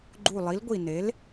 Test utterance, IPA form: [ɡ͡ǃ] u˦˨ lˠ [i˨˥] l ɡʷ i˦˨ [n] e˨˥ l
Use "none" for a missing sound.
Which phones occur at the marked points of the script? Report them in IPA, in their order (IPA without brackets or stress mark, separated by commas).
ɡ͡ǃ, i˨˥, n